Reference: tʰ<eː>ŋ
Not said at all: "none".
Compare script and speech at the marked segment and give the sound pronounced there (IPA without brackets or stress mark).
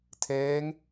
eː